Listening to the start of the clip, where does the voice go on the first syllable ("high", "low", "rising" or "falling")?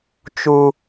low